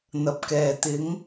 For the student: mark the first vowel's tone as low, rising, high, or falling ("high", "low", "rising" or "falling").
low